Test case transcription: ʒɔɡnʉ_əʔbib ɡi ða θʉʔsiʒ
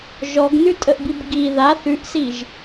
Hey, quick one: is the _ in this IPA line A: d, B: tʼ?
B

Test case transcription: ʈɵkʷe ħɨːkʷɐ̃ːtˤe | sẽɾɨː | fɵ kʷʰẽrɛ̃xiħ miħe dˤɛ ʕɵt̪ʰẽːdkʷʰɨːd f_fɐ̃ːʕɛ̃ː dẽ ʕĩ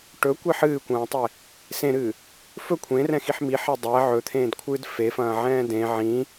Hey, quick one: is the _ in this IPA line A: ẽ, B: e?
B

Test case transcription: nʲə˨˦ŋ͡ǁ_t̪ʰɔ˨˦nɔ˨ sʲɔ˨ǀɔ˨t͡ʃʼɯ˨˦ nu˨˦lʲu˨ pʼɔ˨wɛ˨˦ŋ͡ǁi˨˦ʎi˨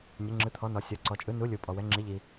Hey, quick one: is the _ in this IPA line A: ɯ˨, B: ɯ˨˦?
B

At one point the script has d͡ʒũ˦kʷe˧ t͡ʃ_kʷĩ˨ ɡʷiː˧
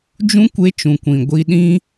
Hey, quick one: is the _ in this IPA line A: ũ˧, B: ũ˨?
B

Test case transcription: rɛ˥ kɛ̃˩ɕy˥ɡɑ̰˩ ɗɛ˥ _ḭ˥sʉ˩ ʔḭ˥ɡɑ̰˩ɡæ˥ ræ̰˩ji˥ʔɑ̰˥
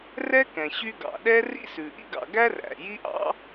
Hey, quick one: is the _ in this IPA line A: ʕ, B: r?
B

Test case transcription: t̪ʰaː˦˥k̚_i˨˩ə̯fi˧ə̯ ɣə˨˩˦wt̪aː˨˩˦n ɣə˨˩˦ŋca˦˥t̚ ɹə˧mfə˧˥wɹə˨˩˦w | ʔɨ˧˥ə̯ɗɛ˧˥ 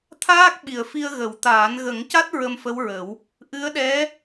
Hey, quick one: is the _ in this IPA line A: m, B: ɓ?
B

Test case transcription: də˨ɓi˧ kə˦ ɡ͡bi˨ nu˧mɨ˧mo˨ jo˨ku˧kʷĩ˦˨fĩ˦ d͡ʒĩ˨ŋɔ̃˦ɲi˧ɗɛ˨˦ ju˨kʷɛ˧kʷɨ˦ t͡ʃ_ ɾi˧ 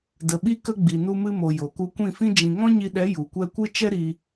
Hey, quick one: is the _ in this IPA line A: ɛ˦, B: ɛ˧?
A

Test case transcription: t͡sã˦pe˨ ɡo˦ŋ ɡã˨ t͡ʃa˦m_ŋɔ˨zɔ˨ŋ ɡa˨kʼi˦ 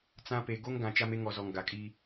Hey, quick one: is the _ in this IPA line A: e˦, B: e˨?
A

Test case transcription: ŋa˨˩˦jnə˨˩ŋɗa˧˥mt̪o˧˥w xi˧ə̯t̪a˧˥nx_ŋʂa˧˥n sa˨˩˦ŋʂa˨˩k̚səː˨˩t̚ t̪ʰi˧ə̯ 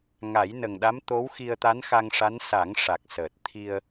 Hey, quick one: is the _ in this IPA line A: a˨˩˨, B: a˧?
B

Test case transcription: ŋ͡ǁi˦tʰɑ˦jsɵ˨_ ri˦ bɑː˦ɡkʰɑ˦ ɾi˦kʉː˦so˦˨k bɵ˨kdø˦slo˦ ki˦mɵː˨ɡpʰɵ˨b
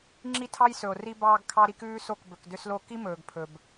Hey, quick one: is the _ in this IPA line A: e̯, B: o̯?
B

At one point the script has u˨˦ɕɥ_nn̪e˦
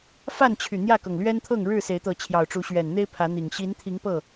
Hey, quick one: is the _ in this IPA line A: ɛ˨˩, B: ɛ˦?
A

